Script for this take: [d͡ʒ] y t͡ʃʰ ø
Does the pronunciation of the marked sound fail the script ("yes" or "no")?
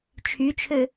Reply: yes